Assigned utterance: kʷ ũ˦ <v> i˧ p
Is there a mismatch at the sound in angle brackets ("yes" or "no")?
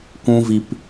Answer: no